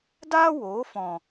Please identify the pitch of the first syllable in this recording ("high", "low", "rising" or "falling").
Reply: high